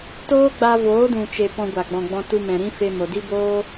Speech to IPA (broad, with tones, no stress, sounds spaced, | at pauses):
t oː˦ ɡ͡b a˧ v oː˨˦ d ũ˨ t͡ʃ e˨ p ɔ̃˧ ɡʷ a˨ ɡ͡b ɔ̃˨ ɡ͡b ɔ̃˧ t u˧ m ɛ̃˨ ɾ ĩ˦ f e˧ m o˨ d i˦ b oː˦